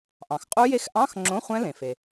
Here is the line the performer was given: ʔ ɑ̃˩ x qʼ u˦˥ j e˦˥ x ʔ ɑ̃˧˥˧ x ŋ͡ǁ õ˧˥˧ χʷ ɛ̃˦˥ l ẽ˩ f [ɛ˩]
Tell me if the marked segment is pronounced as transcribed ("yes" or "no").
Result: no